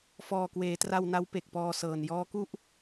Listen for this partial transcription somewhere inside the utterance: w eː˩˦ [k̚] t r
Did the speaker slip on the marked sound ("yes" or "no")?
yes